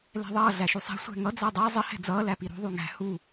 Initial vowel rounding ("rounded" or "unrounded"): unrounded